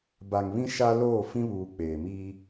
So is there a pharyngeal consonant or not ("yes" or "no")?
no